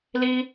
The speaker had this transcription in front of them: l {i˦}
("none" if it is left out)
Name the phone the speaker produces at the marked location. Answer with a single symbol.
iː˦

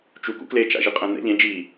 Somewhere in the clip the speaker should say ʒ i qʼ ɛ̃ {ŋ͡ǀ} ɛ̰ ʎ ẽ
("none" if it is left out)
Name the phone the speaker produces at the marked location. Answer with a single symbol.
n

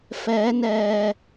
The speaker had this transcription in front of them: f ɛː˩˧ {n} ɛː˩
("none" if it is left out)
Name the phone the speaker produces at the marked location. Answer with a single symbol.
n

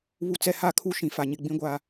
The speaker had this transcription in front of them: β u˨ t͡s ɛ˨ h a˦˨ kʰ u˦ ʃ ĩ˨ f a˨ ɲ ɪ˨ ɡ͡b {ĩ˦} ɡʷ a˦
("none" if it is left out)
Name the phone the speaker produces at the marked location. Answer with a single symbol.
ĩ˦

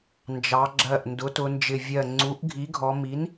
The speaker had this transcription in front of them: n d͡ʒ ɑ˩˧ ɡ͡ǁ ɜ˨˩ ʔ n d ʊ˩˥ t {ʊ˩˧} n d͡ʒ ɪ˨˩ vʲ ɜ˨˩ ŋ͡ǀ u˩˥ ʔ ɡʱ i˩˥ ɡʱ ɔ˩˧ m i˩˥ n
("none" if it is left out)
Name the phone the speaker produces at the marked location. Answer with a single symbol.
ʊ˩˧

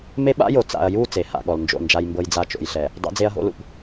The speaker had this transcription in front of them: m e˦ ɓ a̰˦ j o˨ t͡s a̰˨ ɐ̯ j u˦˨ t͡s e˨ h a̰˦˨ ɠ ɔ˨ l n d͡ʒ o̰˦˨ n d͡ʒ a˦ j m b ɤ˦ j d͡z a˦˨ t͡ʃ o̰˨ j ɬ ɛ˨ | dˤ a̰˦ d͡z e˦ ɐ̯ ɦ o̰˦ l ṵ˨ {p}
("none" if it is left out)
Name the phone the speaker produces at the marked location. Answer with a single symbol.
p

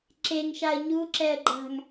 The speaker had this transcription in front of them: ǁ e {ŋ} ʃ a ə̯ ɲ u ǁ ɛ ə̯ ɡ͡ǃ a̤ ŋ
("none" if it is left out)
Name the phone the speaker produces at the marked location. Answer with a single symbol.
ŋ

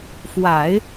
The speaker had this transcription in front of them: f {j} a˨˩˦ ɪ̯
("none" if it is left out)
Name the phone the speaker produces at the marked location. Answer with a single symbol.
w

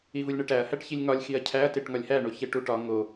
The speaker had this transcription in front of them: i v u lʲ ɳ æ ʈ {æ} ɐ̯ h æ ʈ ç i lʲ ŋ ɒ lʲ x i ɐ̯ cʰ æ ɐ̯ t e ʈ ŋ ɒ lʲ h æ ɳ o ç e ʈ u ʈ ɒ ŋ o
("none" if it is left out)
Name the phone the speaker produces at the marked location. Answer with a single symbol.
æ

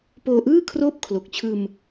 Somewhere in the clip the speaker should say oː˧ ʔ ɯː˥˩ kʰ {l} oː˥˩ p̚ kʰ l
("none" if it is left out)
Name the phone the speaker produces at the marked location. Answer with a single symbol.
r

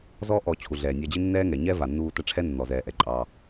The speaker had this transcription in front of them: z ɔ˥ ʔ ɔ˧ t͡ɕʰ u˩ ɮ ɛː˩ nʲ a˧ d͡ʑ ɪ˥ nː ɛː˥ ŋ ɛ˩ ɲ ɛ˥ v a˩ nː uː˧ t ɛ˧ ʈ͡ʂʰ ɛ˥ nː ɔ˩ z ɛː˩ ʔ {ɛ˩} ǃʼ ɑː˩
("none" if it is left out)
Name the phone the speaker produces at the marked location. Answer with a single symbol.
ɛ˩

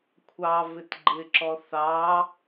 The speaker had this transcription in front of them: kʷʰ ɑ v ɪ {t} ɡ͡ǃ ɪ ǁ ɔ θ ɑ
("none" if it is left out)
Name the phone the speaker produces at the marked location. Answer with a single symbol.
t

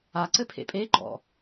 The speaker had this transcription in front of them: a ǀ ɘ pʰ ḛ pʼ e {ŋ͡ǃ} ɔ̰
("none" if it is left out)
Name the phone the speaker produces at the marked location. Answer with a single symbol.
ɡ͡ǃ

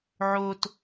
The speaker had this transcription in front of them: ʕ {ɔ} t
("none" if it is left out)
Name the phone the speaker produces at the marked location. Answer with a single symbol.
o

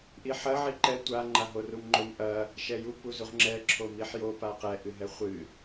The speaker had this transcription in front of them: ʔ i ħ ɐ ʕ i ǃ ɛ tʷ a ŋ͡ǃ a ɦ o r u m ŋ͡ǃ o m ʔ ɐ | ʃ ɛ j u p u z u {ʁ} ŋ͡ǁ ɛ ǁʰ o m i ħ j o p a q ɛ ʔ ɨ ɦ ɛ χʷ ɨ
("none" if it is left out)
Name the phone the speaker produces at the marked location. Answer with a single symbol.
ʁ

